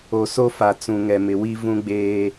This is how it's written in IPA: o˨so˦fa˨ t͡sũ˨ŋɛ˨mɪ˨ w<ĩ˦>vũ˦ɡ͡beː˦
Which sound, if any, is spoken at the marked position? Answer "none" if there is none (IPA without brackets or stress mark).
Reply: i˦